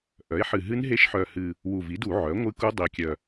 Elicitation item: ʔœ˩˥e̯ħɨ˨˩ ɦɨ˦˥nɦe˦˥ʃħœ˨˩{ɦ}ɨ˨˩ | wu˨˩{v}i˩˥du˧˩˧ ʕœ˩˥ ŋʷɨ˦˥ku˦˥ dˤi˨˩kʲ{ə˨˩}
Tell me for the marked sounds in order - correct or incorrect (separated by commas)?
incorrect, correct, incorrect